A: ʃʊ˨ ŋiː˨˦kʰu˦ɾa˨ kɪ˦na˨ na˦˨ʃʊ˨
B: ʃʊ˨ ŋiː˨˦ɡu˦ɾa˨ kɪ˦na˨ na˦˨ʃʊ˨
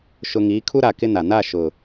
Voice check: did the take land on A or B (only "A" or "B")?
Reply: A